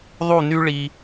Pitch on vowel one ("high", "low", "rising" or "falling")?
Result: falling